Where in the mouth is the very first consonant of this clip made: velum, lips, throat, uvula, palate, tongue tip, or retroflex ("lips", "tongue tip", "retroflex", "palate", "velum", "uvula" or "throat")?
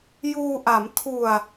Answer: palate